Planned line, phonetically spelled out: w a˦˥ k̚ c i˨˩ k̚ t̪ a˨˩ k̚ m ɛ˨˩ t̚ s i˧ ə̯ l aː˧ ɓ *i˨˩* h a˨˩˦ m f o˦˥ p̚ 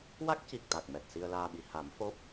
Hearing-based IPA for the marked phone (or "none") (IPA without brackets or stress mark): i˨˩